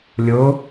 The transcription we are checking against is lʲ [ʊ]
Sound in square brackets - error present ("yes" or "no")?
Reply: no